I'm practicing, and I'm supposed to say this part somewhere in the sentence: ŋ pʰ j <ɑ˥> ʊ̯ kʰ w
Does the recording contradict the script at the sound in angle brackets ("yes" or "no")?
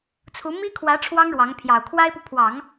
yes